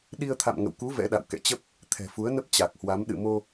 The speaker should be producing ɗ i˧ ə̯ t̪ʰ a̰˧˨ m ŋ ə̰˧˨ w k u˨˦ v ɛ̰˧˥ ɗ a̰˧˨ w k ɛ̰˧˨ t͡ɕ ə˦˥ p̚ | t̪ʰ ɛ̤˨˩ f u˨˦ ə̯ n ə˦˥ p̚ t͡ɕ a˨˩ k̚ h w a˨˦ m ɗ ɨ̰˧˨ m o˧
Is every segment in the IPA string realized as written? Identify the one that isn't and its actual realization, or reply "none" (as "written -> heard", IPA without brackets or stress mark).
none